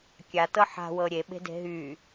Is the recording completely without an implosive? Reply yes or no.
no